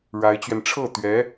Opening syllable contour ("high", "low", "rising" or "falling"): rising